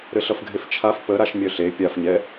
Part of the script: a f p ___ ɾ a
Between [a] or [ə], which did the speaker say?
ə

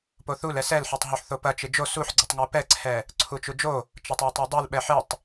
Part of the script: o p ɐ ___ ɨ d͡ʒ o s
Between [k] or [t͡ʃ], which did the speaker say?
t͡ʃ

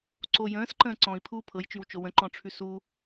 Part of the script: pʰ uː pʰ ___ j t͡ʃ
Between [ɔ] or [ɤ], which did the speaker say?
ɤ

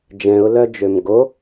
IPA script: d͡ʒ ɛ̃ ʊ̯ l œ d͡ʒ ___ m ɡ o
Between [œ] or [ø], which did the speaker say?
ø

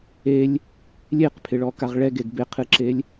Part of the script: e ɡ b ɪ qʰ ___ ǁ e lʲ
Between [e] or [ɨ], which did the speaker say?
ɨ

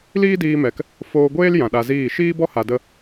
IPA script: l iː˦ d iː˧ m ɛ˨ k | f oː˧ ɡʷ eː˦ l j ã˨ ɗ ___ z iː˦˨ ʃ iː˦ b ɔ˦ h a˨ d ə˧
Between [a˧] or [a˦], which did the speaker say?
a˧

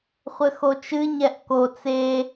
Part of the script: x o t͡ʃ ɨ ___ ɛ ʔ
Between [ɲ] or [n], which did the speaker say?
ɲ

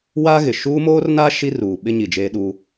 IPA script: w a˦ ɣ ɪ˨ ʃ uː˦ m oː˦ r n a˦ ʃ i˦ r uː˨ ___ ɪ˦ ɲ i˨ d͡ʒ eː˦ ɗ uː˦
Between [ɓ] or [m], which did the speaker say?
ɓ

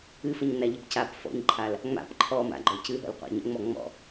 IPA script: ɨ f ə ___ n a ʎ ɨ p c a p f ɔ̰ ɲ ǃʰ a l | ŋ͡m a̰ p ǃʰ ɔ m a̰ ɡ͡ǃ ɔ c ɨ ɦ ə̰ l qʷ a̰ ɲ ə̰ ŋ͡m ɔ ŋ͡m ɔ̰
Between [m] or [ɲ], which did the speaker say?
ɲ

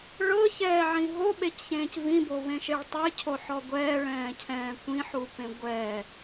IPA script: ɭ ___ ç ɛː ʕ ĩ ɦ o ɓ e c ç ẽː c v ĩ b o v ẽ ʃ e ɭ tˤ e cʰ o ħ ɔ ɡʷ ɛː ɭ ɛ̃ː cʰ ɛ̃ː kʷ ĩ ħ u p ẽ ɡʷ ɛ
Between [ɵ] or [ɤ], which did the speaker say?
ɤ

